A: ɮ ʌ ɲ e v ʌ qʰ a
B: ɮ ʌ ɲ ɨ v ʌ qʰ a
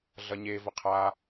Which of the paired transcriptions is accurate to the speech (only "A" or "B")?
A